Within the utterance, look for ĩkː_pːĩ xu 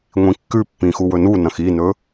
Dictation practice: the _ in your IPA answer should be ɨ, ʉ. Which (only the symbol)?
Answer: ʉ